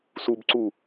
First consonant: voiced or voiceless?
voiceless